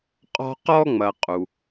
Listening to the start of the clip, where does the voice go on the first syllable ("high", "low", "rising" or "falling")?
high